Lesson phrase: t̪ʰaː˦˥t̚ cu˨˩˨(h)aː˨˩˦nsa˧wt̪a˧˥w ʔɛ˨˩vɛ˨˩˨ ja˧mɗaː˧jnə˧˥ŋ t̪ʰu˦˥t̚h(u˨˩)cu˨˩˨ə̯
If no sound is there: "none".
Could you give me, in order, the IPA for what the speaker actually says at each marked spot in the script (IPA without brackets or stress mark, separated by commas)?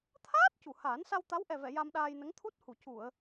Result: h, u˨˩˨